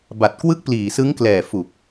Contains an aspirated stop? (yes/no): no